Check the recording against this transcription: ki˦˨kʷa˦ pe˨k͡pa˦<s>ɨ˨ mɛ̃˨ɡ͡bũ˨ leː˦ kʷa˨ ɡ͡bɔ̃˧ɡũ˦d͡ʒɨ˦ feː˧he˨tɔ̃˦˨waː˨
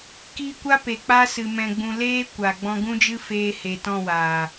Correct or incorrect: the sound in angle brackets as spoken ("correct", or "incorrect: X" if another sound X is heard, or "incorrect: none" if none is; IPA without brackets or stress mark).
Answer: correct